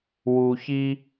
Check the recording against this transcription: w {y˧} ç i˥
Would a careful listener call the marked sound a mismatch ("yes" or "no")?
yes